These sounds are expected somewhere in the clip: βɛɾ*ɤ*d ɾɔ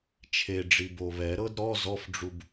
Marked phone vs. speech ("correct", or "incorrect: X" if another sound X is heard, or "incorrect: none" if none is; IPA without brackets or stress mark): correct